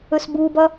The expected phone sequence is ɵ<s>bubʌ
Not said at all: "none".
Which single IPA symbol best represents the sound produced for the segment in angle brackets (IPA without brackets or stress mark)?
s